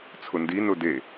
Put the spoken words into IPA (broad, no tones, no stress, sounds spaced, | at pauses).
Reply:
t͡sʰ ʊ n d i n ʊ d e